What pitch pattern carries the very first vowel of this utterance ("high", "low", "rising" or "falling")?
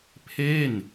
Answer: falling